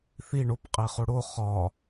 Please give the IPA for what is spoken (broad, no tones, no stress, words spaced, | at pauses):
θi ɳop qʼeχoɽo χɒ